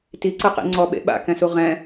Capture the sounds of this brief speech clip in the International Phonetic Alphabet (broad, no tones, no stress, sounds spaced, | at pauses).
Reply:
t i ǀ ɯ q ḭ ŋ͡ǀ ɔ ɓ ḛ ɓ a̰ k ɛ̃ s u ʁ ɛ̃